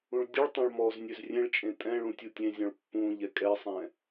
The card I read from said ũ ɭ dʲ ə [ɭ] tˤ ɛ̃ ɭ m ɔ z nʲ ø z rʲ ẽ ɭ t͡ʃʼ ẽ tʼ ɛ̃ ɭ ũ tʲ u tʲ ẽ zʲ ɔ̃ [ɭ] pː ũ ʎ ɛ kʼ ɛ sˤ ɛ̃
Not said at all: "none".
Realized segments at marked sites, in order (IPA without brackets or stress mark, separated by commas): ɭ, ɭ